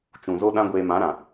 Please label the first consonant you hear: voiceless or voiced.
voiceless